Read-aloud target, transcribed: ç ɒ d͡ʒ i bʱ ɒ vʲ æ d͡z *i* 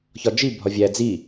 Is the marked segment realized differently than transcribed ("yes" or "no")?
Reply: no